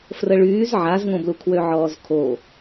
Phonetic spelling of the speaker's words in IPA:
f r ə ɭ yː z ʕ a z ŋ õ b l u kʰ w ø ʕ ɔː z kʰ o

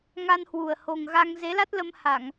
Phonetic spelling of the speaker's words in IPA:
ŋ a˧ n h w u˨˩ ə̯ h o˨˩ ŋ ɣ a˧ ŋ z e˨˦ l a˦˥ t̚ l ə˧ m h a˧˩˨ ŋ

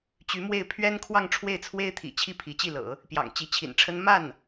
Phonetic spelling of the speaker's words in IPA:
t͡ɕ y˧˥ m w e˥˩ ɪ̯ pʰ ɥ ɛ˥ n kʰ w ɑ˥˧ ŋ ʈ͡ʂʰ w e˥˩ ɪ̯ t͡sʰ w e˥ ɪ̯ t̪ʰ ḭ˨˩ t͡ɕʰ i˥˩ pʰ i˧˥ t͡ɕ i˥˩ l ɤ̰˨˩˦ | p j ɑ̰˨˩ ŋ t͡ɕ i˧˥ t͡ɕʰ ḭ˨˩ n ʈ͡ʂʰ ə˥ n m a˥˩ n

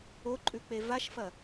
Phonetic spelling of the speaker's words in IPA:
o ǃʼ ʉ k͡p e v a ʃ f ɐ

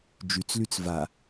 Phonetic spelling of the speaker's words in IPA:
d͡ʒ y t͡s l y t͡s v a

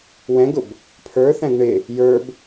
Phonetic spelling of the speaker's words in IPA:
w ɛ̃ ɡ ʊ b | pʰ ə˞ θ æ̃ ɡ ɳ ɪ | j ə˞ b

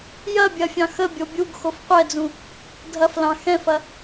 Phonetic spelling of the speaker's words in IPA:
j ɐ bʲ ɐ fʲ ɑ̃ x ə bʲ o bʲ u ɡ x o f qʷ ɛ d͡z ũ | dʱ ɐ f l ɑ̃ x ɛ̃ f ɐ

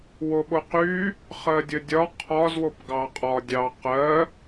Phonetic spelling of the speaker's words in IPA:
w o ɓ o q y | χ ɜ dʲ ə dʲ ɒ qʰ ɒ z w o p ɡ ɑ qʼ ɒ dʲ ɑ q ɜ

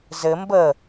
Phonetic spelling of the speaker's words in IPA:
z ɘ m b ə

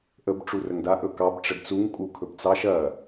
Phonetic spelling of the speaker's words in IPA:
ʔ ə b ʈ͡ʂ u r ə ŋ d a ʔ ɵ k ɑ b ʈ͡ʂ ə d t͡s u ŋ kʼ u kʰ ɵ b t͡s ɑ ʃ ɐ

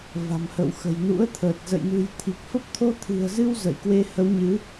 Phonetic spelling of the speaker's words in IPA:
v a̤˨˩ m h ə̰˧˨ w x ə̤˨˩ j n ṵ˧˥ ə̯ t̪ʰ əː˨˩ t̚ z ə̰˧˨ j n ṳ˨˩ j t̪ʰ i˨˩ k̚ f ə˦˥ p̚ t̪ʰ o˧ t̪ʰ ɨ̤˨˩ ə̯ z ɨ˧ w z ə̰˧˨ j k w e˧ h ə˨˦ w ɲ ɨ˨˦

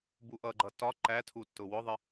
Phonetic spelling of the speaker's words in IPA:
b u ʔ ʌ ɡ͡ǃ ʌ t ɒ ǃ æ tʰ u tː ʊ w ʊ ðˤ ɪ

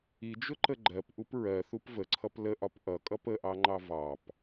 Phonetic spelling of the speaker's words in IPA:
i d͡ʒ ʊ ǃ ə ɡ͡ǃ ɜ p ʔ u p ɹ ɜ θ u p v ə ǀʰ ʌ p l ə ʔ ɒ p ʔ ʌ kʼ ʌ p ə ʔ ɑ ŋ͡ǃ ɑ v ɑ p

